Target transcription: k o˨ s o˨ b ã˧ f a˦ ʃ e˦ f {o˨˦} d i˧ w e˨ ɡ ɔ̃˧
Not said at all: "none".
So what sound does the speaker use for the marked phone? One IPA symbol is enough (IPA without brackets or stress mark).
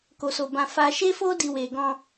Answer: o˦